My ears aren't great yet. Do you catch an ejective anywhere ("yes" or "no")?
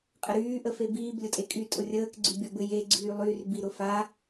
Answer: yes